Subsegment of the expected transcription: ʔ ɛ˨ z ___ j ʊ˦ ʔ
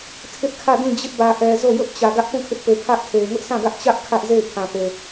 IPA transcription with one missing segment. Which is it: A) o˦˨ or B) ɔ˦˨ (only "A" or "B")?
A